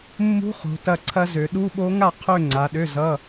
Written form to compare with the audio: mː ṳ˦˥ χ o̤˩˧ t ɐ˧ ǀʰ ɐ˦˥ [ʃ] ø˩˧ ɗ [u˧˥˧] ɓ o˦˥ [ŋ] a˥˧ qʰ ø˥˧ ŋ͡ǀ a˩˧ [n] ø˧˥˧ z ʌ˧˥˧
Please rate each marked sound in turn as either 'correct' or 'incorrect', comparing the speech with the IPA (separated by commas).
incorrect, correct, correct, incorrect